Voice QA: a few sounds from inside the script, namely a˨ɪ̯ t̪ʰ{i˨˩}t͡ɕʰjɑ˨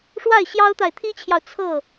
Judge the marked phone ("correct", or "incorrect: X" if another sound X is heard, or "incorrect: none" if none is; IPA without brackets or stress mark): incorrect: i˥